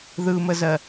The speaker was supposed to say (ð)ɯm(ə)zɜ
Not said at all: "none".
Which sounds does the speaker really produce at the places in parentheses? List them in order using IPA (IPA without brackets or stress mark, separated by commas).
ð, ə